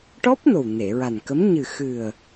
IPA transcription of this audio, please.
ʈ ɔ˦˥ p̚ n o˨˩ w n e˨˩˨ ɹ a˨˩ n k ə˧˥ m ɲ ɨ˨˩ x ɨ˨˩ ə̯

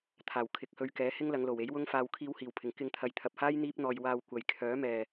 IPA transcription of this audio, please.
t̪ʰ aː˨˩ w kʰ ɪ˨ k̚ h ɵ˧ ɥ k ɛː˨˥ h ɪ˥ ŋ l ɐ˨˧ ŋ l o˨˩ w e˨˥ j w ʊ˥ ŋ f aː˧ w kʰ iː˧ w h iː˨˩ w pʰ ɪ˨˩ ŋ k ɪ˧ ŋ t̪ʰ ɐ˨ j t̪ʰ ɐ˨ p̚ h aː˥ j n̪ iː˥ p̚ n̪ ɔː˧ j w aː˧ w kʷ ɐ˨ j kʰ œː˨˥ m ɛː˨

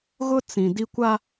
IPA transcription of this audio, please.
ɣ ʊ˦ t͡s ĩ˨ d i˦ kʷ a˦

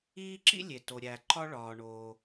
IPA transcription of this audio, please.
iː˥ ǁ ḭ˥ lʲ e˩ t o˩ ɾʲ æ˩ ǃ ɒ˥ ɭ ɒː˩ ɳ oː˩

